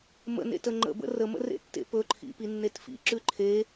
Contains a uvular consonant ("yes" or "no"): no